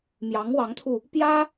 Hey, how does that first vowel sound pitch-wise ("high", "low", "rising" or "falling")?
rising